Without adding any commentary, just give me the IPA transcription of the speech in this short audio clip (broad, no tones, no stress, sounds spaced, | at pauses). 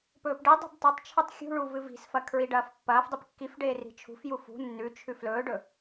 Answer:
p ɵː p ɖ i dˤ i̤ b tˤ ɵ tˤ t͡ʃʰ ɨ tˤ xʲ ṳ ɭ u v ɨ v i̤ s f ɐ kʰ ɹ i ɖ ɐː f pː ɐː f dˤ i p kː i f ɖ eː r i̤ t͡ʃʰ ṳ f j u f ṳ nː ʉ t͡ʃʰ ʉ f l ɵː ɖ ɵ